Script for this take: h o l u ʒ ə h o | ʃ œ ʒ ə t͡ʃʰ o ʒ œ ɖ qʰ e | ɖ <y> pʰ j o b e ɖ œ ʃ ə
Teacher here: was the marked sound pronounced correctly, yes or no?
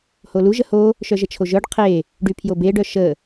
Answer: yes